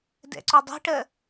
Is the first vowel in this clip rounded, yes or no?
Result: no